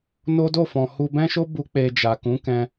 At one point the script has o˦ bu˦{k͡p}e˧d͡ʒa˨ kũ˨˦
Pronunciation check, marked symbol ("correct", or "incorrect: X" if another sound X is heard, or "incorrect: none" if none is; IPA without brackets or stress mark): correct